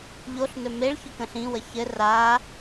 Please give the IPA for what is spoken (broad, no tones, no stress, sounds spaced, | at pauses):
ʎ o ɬ n ɵ m e ɭ ç ɵ k ə̃ ɬ ĩ w ə ç ɘ r a